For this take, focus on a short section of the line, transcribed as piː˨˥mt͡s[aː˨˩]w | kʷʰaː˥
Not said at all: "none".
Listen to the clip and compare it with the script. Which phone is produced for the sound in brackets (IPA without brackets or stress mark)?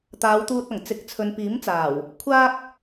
aː˨˩